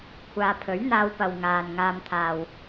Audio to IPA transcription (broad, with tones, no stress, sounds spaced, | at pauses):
kʷʰ aː˨ pʰ ɵ˨˥ ɥ n̪ aː˧ w p ɐ˨ w ŋ aː˨ n ŋ aː˧ m t̪ʰ aː˨ w